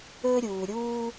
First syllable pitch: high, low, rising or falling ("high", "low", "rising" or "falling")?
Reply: high